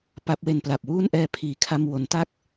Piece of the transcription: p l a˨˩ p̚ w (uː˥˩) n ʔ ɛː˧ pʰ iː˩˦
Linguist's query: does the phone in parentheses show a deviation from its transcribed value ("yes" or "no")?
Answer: no